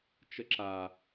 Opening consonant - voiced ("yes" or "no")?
no